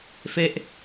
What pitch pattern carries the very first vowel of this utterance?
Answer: falling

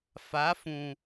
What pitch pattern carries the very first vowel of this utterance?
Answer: rising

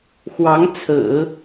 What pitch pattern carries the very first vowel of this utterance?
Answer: rising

